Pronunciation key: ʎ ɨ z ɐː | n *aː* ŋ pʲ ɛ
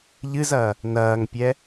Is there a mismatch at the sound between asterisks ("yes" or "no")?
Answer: yes